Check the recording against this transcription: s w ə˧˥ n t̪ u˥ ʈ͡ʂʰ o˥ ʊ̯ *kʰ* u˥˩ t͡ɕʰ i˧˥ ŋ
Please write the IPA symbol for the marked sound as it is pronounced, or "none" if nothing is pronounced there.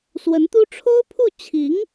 pʰ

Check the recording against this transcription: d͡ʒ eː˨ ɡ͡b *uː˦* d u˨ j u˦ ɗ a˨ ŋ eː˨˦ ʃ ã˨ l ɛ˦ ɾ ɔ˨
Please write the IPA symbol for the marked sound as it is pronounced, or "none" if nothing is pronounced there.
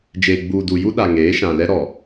uː˨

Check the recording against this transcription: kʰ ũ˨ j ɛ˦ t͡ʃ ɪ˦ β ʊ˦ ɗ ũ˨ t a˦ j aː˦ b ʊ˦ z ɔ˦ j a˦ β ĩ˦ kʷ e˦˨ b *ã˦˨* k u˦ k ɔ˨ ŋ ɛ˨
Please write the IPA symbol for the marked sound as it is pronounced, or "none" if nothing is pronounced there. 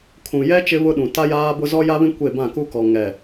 ã˦˨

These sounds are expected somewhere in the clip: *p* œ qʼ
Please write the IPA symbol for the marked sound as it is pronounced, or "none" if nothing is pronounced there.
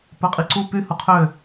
p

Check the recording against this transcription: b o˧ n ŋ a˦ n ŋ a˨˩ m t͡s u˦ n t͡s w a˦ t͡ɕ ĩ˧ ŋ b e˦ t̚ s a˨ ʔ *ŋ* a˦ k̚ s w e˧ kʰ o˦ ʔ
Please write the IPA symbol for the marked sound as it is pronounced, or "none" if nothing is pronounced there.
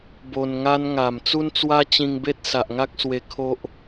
ŋ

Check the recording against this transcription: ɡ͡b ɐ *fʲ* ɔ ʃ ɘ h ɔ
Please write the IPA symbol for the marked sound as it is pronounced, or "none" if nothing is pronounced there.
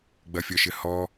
fʲ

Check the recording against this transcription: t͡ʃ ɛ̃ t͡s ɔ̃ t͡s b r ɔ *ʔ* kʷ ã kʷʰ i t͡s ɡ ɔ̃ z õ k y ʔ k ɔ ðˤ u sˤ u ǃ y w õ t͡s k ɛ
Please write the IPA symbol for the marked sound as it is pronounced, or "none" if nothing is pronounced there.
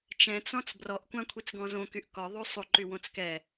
ʔ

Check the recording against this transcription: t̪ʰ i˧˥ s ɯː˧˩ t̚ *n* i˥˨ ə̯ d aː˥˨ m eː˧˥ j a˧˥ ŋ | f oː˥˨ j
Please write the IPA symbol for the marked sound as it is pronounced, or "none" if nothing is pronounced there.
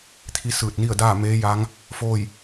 n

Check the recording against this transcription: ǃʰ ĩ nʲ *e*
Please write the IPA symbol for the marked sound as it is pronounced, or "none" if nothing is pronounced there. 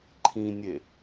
e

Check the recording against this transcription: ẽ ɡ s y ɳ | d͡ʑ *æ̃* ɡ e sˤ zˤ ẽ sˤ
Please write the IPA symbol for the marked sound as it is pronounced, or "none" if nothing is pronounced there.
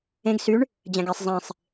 æ̃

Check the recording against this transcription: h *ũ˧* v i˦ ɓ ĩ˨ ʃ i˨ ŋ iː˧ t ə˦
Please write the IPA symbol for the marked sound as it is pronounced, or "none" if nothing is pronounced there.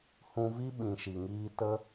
ũ˧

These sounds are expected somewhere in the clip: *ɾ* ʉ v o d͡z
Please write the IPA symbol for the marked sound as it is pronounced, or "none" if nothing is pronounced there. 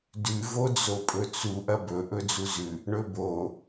d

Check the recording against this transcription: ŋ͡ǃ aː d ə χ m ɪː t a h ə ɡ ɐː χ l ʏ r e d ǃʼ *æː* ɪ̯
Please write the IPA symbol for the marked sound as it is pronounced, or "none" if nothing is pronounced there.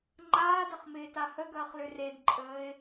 əː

